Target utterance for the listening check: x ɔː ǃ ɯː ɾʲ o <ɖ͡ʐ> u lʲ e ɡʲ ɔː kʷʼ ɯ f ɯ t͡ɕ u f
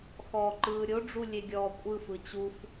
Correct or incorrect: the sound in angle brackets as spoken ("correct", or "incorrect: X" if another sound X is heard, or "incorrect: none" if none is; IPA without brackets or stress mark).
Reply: correct